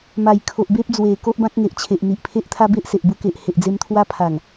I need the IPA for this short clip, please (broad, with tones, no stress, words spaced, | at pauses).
ma˨˩jkʰo˨ʔbe˦p̚ d͡zwe˨˩ko˦ʔbã˦k̚ ŋe˨ʔt͡ɕʰe˨ʔn̪i˨ʔpʰe˦ʔ t̪ʰa˦be˦ʔ se˨ʔbu˧ke˨ʔ he˨ʔd͡ze˧mt̪ʰwa˦pʰa˨˩ŋ